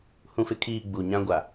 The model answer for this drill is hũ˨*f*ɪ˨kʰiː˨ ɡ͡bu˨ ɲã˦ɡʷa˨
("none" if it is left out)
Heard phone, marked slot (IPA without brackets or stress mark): f